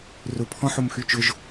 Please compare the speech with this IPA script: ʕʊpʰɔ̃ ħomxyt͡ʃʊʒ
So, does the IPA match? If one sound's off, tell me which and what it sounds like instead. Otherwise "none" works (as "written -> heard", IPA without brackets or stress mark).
ʕ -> r